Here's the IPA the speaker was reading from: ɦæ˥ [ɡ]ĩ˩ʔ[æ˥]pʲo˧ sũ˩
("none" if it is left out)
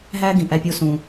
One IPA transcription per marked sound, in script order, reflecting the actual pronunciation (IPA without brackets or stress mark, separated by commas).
ɡ, æ˧